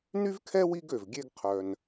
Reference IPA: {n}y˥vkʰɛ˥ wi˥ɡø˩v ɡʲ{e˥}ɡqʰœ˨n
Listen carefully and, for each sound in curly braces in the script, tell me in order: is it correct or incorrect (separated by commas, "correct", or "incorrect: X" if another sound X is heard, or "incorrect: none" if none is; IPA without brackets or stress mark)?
correct, incorrect: e˦